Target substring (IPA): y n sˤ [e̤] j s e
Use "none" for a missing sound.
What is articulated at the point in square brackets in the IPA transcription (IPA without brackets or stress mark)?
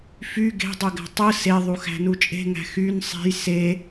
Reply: e̤